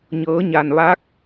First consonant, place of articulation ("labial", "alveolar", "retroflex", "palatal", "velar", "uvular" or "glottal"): palatal